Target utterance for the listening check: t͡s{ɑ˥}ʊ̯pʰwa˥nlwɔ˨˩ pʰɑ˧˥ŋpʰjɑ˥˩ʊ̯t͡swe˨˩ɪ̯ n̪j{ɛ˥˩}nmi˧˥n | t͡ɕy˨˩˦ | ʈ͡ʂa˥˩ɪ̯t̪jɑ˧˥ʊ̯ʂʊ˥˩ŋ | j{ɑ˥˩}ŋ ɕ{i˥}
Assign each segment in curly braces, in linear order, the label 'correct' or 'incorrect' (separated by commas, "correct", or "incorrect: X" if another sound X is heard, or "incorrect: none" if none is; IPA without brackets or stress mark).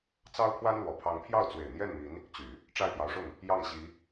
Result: correct, correct, correct, incorrect: i˧˥